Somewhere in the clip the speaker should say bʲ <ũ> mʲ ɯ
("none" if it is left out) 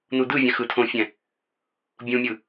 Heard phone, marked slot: ũ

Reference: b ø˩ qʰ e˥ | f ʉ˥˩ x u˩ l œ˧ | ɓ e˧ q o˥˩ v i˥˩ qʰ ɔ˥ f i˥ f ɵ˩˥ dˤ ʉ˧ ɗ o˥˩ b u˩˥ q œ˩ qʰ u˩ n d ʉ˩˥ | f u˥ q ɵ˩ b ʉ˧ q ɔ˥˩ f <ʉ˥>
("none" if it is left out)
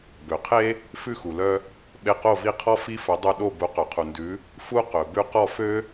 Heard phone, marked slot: ø˥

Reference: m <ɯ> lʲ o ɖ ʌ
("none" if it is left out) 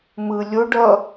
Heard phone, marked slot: ɯ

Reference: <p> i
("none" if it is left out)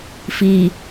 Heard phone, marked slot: f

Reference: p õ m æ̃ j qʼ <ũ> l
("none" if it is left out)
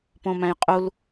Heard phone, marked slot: u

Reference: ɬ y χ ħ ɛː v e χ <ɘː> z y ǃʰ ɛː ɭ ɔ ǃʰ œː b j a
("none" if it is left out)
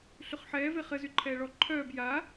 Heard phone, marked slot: ɘ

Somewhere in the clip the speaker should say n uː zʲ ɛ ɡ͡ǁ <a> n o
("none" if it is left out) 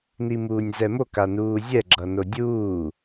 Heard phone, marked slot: ʌ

